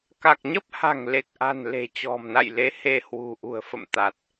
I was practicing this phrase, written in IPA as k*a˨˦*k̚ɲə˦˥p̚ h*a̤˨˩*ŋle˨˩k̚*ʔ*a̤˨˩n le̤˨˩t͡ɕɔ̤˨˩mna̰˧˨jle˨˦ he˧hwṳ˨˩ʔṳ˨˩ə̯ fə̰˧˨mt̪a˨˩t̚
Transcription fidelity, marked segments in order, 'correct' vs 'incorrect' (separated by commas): incorrect, correct, correct